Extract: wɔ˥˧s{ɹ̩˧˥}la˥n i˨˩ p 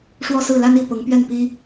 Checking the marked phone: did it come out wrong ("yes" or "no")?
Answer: yes